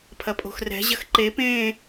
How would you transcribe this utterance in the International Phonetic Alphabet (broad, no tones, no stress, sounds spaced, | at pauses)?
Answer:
pʰ ɐ pʼ o̤ x r ɛ̤ ʑ ɐ x ǃ e p ẽː